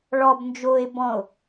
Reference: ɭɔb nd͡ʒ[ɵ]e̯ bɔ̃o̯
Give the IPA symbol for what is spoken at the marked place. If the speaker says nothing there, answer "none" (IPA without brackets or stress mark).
o